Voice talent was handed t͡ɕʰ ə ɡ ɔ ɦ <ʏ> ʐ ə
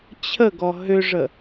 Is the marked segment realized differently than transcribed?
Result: no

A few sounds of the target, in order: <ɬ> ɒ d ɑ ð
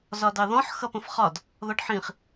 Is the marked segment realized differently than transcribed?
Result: yes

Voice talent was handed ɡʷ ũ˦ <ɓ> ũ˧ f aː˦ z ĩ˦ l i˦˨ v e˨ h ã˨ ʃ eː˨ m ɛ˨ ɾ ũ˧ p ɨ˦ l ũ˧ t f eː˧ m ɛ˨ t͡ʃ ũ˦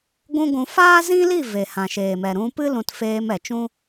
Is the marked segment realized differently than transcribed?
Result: yes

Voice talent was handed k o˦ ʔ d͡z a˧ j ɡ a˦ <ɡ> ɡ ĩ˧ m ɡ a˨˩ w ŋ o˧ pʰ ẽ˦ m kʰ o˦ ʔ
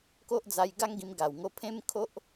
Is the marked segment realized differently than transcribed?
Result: yes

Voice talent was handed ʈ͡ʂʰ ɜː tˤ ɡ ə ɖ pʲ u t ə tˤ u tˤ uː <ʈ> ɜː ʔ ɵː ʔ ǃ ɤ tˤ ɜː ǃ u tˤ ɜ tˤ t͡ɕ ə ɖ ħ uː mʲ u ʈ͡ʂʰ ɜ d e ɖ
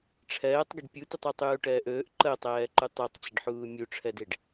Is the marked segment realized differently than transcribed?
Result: no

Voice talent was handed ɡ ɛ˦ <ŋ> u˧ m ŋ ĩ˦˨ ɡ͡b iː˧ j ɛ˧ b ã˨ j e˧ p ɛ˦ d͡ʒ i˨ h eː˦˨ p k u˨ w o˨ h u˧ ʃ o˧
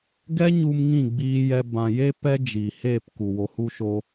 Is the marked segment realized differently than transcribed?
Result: yes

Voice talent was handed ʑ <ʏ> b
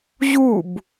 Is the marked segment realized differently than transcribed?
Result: yes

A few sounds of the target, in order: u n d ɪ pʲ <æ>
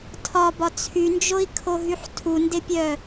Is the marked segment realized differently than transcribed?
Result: yes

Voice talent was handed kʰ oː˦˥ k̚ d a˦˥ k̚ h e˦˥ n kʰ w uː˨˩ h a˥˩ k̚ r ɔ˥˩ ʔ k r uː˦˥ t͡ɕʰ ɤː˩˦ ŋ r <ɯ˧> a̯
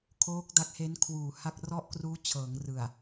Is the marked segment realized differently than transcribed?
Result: yes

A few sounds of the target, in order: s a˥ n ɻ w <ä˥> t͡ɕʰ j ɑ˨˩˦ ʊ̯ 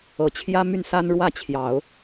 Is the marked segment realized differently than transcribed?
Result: yes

